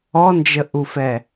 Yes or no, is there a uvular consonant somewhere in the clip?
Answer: no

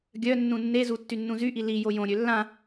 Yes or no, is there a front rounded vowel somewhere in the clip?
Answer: yes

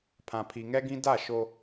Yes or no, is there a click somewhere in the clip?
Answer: no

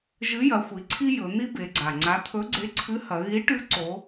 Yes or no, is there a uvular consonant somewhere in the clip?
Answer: no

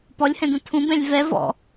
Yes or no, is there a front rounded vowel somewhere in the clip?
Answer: no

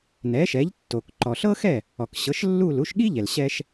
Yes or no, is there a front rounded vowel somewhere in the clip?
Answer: no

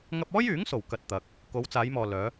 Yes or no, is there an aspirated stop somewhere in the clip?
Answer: no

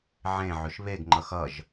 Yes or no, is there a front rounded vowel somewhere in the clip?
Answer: yes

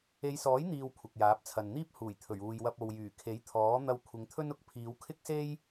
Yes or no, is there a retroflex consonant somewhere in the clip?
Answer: no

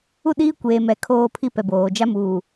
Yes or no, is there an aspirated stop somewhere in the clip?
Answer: yes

